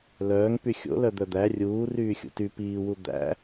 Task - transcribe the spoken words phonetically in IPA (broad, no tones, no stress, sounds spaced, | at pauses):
l œː ŋ p y xʲ o̰ l œ d̪ œ d̪ æ rʲ uː r yː xʲ ṵ t y p iː w u d̪ æ̰